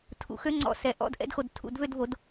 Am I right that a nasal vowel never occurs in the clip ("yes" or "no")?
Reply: yes